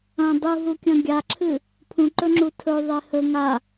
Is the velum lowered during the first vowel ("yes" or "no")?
yes